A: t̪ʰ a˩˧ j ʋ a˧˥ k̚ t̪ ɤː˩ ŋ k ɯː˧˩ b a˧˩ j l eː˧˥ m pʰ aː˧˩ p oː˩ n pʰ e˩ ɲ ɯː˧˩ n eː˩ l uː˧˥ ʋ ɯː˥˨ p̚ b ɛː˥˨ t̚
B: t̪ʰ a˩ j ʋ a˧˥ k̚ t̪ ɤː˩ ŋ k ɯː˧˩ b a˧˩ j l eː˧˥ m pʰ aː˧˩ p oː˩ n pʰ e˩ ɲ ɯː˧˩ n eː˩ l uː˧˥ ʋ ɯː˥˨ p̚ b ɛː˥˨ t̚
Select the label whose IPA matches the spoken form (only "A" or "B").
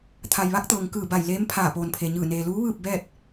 B